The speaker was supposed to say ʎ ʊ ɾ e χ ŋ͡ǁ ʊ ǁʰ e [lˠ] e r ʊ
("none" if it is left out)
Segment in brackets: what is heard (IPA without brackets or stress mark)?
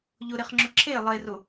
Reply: lˠ